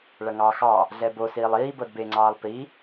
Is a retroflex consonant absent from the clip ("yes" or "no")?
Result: no